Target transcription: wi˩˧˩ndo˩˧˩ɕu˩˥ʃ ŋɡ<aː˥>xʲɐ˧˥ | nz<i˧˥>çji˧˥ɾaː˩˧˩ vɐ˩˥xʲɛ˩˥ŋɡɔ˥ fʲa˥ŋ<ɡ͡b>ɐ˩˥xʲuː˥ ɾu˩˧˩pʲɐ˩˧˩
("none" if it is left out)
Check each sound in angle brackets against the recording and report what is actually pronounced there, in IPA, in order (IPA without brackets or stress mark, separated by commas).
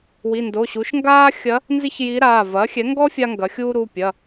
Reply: aː˥, i˥, ɡ